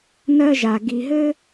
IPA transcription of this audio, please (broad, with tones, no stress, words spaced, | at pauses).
nɜ˦ʒa˨ ɡi˨ɦɘ˦